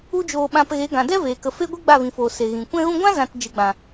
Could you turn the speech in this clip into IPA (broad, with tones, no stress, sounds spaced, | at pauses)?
u˦ d͡ʒ oː˧ ɓ ã˧ p ɣ e˨˦ ɡ ã˨ d ɛ˦ v eː˨ k ə˧ f e˦ ɡʷ i˦ ɡ͡b a˦˨ v ĩ˨ f oː˨ s e˨ ɣ ĩ˨ kʷ ɛ̃˧ ɣ ũ˧ ɡʷ ã˦ z ã˧ t d͡ʒ ɨ˨ ɡ͡b ã˨